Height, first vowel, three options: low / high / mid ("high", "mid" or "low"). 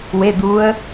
mid